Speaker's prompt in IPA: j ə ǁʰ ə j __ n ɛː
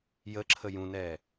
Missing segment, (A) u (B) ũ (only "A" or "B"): B